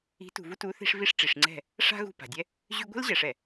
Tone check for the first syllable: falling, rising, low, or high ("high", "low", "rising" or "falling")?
rising